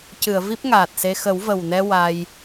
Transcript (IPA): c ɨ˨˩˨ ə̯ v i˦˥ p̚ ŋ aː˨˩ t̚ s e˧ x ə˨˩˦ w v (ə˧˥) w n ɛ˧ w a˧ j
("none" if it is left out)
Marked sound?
ə˨˩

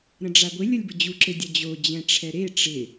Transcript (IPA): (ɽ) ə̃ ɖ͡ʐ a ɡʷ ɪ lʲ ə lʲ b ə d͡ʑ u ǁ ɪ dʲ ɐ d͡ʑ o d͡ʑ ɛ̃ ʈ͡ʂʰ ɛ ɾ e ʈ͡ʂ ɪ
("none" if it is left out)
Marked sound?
ɾ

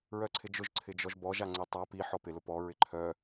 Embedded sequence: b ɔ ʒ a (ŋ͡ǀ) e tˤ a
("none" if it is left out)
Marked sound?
ŋ͡ǀ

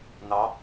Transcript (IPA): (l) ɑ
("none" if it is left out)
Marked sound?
n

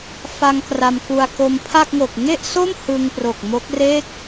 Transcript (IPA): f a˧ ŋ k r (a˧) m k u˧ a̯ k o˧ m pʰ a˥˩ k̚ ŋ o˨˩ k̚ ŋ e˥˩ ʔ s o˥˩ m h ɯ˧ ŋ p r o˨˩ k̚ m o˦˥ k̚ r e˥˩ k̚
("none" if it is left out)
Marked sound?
a˧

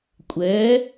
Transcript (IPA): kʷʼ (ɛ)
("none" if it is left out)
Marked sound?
ɛ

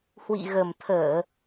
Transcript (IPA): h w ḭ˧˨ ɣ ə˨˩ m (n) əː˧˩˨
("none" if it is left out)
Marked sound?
t̪ʰ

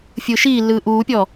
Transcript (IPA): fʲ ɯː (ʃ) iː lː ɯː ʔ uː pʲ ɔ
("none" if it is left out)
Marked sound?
ʃ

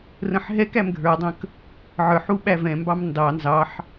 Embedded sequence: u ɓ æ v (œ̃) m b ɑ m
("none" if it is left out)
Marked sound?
ɛ̃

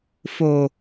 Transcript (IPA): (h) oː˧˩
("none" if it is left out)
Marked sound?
f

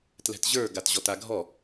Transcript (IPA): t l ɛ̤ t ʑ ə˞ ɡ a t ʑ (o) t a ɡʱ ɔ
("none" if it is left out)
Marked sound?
ɔ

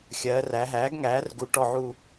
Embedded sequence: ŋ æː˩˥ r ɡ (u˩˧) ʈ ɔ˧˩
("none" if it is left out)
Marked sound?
u˩˧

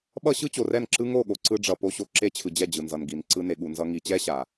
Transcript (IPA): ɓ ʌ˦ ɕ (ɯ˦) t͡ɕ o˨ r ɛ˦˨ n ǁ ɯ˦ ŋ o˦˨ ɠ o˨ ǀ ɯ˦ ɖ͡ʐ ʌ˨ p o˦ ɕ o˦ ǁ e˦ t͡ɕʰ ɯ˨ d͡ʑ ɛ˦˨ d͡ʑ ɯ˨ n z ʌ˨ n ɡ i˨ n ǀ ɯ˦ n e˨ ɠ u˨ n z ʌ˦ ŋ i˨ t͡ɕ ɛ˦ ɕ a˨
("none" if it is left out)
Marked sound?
ɯ˦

